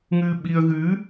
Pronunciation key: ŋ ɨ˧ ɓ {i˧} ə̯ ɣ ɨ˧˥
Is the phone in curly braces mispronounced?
no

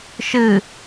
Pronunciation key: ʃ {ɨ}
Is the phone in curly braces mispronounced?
no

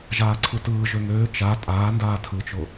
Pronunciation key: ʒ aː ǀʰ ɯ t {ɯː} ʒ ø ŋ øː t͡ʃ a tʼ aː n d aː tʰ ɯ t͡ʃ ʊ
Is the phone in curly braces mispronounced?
no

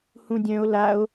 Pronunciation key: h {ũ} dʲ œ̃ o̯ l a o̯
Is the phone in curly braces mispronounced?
no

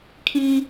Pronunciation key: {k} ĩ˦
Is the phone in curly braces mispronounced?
yes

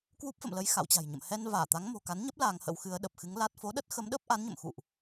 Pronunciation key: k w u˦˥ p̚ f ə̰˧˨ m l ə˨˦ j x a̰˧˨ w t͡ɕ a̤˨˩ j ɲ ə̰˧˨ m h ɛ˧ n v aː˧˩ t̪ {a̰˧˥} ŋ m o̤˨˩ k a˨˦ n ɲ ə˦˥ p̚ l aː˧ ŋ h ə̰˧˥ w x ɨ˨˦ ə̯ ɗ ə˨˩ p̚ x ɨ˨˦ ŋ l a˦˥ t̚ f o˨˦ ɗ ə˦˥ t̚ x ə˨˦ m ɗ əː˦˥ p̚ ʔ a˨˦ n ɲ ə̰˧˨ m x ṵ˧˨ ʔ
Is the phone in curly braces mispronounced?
yes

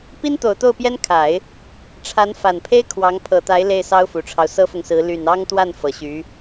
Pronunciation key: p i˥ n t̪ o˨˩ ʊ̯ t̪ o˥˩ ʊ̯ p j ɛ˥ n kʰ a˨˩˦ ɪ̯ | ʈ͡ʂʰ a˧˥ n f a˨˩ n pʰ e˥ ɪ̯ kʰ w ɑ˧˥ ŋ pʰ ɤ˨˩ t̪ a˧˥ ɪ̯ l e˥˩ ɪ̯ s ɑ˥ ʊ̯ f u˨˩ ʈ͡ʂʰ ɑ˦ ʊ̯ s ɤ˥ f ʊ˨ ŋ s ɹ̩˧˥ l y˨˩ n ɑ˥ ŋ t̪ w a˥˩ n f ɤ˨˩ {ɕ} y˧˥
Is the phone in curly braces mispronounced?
no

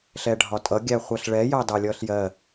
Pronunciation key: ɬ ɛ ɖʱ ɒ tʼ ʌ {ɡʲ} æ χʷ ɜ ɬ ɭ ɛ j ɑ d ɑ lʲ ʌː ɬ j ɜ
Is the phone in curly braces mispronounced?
no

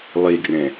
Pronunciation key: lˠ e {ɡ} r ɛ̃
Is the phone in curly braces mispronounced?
no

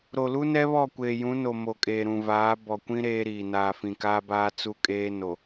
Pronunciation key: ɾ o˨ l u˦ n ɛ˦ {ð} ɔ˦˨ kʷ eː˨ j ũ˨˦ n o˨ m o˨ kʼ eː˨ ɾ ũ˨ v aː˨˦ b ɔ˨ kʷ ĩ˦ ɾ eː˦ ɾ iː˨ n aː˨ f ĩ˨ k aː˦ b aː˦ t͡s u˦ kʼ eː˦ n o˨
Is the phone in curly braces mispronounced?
yes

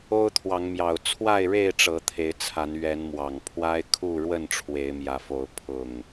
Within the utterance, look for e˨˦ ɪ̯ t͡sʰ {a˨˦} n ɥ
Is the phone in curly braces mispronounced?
no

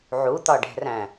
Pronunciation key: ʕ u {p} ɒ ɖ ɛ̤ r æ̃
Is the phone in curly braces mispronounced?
yes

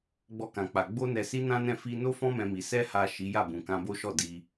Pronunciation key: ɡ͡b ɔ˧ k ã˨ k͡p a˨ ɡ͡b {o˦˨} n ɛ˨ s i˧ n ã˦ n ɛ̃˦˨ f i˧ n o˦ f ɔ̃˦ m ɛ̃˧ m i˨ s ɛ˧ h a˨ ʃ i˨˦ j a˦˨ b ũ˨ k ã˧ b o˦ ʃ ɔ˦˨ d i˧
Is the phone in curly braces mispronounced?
yes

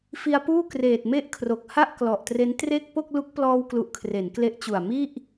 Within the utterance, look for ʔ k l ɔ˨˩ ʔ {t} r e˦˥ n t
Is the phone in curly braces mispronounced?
no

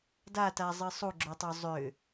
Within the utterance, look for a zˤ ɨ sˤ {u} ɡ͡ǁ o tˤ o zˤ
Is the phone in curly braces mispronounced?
no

